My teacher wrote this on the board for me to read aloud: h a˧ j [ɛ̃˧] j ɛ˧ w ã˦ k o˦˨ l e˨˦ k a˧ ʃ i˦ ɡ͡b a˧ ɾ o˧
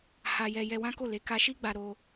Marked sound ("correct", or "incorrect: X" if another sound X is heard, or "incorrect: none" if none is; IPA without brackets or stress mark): incorrect: ɛ˧